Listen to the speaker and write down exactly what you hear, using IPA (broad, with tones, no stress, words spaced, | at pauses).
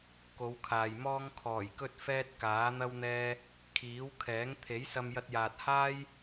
ko˨˧wkʰaː˨jmɔː˥ŋ kʰɔː˨˩jkɵ˥t̚fɛː˥t̚ kaː˨˥n̪ɐ˥wn̪ɛː˥ | kʰiː˨˥w kʰɛː˨˥ŋ t̪ʰe˨˥j sɐ˧mjɐ˧t̚jaː˨t̚ haː˥j